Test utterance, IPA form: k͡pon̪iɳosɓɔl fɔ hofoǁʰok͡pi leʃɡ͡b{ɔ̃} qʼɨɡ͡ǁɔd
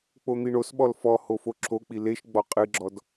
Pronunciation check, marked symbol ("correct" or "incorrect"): incorrect